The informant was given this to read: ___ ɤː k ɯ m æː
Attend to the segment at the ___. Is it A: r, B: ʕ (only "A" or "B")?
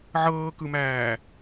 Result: B